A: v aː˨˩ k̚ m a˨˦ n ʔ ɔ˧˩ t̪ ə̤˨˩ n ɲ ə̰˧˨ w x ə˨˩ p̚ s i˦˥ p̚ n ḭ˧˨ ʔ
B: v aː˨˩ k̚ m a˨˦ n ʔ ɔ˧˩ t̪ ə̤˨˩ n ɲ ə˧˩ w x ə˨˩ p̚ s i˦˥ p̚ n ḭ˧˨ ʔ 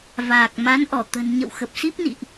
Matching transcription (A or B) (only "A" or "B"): A